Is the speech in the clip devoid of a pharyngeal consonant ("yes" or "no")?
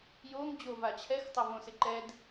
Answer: yes